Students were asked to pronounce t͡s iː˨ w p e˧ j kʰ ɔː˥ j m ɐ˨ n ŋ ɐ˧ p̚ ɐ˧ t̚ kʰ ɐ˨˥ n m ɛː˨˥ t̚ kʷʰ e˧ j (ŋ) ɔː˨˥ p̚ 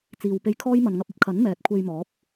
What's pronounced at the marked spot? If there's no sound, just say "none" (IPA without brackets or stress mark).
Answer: m